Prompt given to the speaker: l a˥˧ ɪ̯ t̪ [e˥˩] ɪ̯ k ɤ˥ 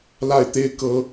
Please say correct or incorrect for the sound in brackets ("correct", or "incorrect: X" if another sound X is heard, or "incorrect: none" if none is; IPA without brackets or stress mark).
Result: correct